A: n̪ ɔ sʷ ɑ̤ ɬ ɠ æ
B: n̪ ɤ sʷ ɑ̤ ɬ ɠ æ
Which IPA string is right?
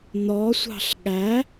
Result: A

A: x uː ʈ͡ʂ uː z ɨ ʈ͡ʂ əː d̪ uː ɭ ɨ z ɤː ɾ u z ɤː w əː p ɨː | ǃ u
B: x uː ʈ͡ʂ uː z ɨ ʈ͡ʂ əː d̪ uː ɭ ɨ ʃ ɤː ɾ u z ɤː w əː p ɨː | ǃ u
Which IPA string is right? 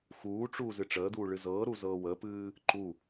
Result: A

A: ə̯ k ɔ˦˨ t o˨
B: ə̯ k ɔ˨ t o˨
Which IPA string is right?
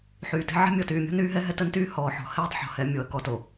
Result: B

